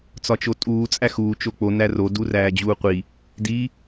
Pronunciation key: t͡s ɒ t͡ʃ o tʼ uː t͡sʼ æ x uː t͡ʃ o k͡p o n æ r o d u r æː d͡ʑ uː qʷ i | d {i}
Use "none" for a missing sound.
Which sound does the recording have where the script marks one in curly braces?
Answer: i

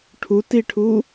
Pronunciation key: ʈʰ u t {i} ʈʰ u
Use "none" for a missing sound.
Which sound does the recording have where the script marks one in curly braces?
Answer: i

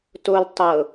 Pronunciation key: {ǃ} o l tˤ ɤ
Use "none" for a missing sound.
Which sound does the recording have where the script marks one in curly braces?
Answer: t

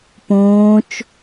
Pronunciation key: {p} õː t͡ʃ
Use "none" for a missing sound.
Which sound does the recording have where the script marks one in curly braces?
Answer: p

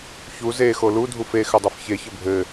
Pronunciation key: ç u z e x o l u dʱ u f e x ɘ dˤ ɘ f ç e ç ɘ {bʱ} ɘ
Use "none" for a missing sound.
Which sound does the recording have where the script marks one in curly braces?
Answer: bʱ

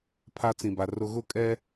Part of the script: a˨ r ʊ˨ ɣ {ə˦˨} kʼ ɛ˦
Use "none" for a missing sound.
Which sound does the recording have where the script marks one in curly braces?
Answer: ʊ˦˨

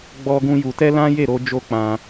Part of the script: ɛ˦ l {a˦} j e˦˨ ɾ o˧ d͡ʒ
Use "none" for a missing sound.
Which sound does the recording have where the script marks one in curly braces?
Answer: ã˦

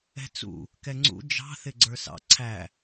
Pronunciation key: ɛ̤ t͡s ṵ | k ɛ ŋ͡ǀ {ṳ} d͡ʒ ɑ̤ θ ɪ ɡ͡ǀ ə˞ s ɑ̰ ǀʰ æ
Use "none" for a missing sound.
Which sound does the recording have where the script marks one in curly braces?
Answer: ṵ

